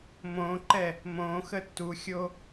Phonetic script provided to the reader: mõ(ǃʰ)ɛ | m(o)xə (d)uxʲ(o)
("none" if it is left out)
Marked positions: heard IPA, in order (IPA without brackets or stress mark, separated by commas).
ǃ, õ, tː, o